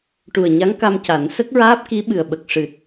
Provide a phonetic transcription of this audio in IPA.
ʈ u˨˩ ə̯ ɲ a˧˥ ŋ k a˧ m c a˨˩˦ n s ə˦˥ k̚ ɹ aː˦˥ p̚ k i˧˥ ɓ ɨ˨˩ ə̯ ɓ ə˨˩ k̚ ʂ ɨ˨˩ t̚

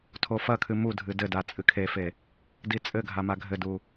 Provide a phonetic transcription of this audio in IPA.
tʰ o f ɐ kʰ ɨ m u dʱ ɨ d ɘ d a t͡sʼ ɨ kʰ e f e | d i t͡sʼ ɘ ɡʱ a m a ɡʱ ɘ d u

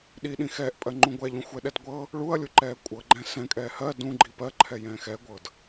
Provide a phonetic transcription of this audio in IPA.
ɗ i ɗ ĩ x ɛː ʔ pʼ ɜ ŋ͡ǃ ũ ɡʷ ɛ ʎ ũ xʷ ɛ ɗ ɛ d ɡʷ ɤ | ɭ u ɐ̯ lʲ u ǃ ɛː kʷʼ ɤ ɡ͡ǃ ɛ̃ s ɛ̃ kʼ ɛː h ɜ d ũ ɡ͡ǃ i p ɜ ǃʰ ɛ j ɛ̃ː x ɛ ɡʷ ɤ d

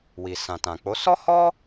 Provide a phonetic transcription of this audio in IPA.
w i˨ s ã˨ t ã˨ k͡p o˨˦ s ɔ˦ h ɔ˦

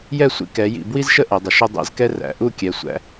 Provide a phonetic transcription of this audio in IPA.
j ɛ˥˧ sʷ ḭ˧ k ɛ˩˧ j ḭ˧˩ b w i˥ z ʃ ə˥ ʔ ɛ˩˧ dˤ ʊ˩˧ ʃ ʊ˥ dˤ ɛ̰˧ z k ɛ˥ r æ̰˩˧ ʔ u˥˧ kʲ ɛ˩˧ sʷ æ̰˧

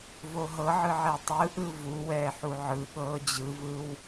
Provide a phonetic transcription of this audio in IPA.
v o ɦ ɤ ʕ ɯ ʕ ɛ tˤ ɯ ʔ ɯ v u w ɛː ħ u ʕ ɯ ɠ ɤː d͡ʑ ɯ v ɯ w

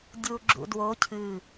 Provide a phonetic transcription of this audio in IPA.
dʲ u ɡ͡ǁ ṵ d w o cʰ ɨ

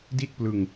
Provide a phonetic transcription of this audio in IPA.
d i˥˩ t̚ p l ɯ˧ ŋ

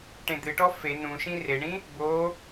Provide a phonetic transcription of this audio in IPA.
ʈ ẽ d̪ ɨ ʈ ɔ f e n ũ ʃ ĩ r e ɳ ĩ | b o

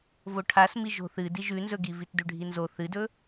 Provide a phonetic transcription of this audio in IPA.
v o ʈʰ a s m i ʒ o̤ θ ɨ d i ʒ ʉ n z ɵ ɡ i v i t d ʉ ɖʱ i n z o θ ɨ d ɵ

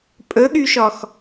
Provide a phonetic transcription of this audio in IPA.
pʼ ɵ ɠ y ʃ ɔ x

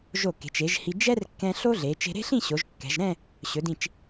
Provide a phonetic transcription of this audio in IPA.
ʒ o˧˩ k e̤˩˧ t͡ʃ e˩˧ ʒ h i˧ d͡ʒ ɛ˥ r kː ɛ̃˧ ɬ o˥ ɮ e˩˧ t͡ʃ e̤˧ ɾ e̤˥ ɬ ĩ˥˧ ɕ o˩˧ ʒ kː ɛ̤˩˧ ʒ ɾ ɛ̃˥˧ | ɕ ɵ˩˧ d ĩ˧˩ t͡ʃ

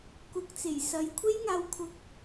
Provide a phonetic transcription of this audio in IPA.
k ʊ˨ k̚ t͡s e˨˩ j s ɐ˨˧ j kʷʰ e˥ j ŋ aː˧ w kʰ ʊ˧ k̚

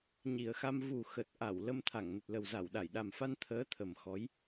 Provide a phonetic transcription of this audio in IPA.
ɲ i˨˩ ə̯ x a˧ m v u˨˩ x ə˨˩ t̚ ʔ a˧˩ w l ə˧ m t̪ʰ a˧˩ ŋ n ə˨˩ t̚ l ə˨˩ w z a˧˩ w ɗ a˧˩ j ɗ a˨˩ m f a˧ n t̪ʰ əː˨˦ t̪ʰ ə˨˩ m x ɔ˨˦ j

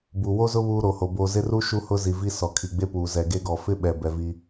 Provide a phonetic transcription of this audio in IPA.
b u˨ w o˦ z ʊ˦ β uː˦ ɾ o˨ h o˨ b o˨ z ɪ˦ r u˦ ʃ u˦ h ʊ˦ z i˨ v i˦ s ɔ˨ kʰ i˨ ɡ͡b e˦ p uː˨ z ɛ˨ ɡ e˦ ɡ ɔ˨ f ɪ˦ ɓ ɛ˨ b ɛ˨ v i˦

